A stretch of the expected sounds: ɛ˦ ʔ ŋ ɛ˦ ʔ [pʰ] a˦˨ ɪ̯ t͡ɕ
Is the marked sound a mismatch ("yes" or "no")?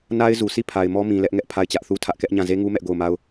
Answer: no